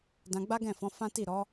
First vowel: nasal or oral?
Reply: nasal